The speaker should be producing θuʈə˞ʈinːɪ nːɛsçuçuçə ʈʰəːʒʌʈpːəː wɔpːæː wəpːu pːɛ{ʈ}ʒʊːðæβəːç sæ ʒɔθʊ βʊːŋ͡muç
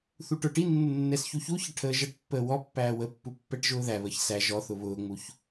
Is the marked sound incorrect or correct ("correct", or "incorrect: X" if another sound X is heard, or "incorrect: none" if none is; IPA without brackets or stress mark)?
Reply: correct